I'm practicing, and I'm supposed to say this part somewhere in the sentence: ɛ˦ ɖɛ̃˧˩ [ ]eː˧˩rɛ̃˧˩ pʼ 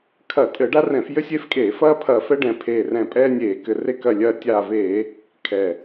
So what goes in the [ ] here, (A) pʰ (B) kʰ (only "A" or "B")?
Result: A